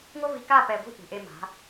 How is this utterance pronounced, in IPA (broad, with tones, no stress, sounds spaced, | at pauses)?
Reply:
ŋʷ ɐ˥ v i˧ k a˥˧ p ɛ˧ ɡʷ i̤˥ ʔ ṳ˩˧ ʔ e˧ m a̤˩˧